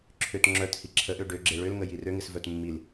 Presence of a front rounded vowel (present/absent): present